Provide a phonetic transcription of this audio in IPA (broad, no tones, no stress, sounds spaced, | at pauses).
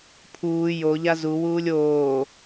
pʰ uː j o ʎ a z u w uː lʲ oː